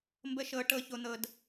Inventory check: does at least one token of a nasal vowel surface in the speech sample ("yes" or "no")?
no